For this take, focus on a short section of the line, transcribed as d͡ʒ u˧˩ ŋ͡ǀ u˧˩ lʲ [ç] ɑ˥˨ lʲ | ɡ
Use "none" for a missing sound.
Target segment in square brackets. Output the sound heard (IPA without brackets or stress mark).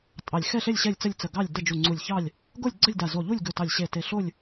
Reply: ç